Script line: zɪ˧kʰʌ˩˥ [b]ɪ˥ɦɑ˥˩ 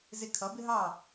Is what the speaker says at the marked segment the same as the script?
yes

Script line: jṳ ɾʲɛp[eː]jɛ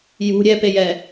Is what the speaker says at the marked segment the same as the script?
no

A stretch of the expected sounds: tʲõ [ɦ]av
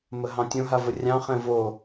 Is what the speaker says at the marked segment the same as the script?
yes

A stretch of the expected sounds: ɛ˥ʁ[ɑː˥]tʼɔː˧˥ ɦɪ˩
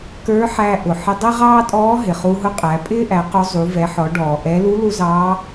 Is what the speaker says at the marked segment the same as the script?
yes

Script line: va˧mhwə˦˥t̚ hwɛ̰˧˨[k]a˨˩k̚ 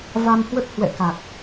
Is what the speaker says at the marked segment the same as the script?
yes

